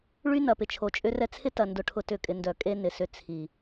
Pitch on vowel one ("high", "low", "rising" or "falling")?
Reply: high